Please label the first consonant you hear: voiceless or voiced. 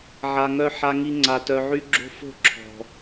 voiced